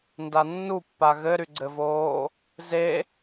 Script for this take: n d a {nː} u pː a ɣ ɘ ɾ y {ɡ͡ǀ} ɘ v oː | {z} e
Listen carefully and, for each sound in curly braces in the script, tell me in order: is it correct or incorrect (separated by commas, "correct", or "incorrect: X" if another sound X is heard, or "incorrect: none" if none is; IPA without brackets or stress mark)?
correct, correct, correct